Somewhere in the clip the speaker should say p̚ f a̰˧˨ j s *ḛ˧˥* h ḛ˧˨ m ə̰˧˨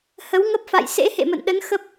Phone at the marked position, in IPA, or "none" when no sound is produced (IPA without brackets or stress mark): ḛ˧˥